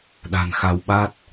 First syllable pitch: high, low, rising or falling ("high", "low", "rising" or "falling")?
low